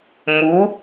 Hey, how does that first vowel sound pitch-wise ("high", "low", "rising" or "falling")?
rising